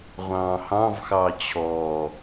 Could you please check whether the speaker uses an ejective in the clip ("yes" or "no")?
no